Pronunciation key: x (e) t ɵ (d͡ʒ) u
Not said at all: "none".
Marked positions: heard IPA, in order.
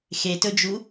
e, d͡ʒ

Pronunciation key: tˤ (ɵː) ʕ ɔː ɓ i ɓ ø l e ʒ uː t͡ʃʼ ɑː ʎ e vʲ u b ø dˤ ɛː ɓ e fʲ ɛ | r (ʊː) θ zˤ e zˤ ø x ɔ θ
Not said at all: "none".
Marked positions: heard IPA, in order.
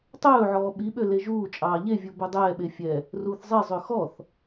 ɵː, uː

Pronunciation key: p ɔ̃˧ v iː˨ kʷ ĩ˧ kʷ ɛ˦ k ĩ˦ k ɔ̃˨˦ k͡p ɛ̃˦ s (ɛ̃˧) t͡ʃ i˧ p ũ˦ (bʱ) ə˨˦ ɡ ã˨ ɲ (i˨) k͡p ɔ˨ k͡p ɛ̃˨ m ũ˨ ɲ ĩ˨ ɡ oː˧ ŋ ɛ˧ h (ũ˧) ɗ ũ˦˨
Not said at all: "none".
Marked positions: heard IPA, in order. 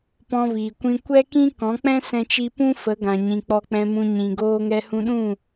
ɛ̃˧, f, ĩ˨, ũ˧

